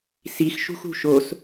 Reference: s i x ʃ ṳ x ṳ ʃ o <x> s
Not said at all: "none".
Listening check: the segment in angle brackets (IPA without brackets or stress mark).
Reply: none